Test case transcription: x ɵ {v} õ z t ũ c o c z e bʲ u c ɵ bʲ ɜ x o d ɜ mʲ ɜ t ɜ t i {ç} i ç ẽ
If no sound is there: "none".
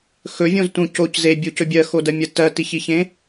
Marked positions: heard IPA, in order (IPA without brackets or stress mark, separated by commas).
vʲ, ç